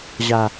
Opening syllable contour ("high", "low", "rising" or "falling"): low